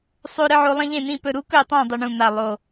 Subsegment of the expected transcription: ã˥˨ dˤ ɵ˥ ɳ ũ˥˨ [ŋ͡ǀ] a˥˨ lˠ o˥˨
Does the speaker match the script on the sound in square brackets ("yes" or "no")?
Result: no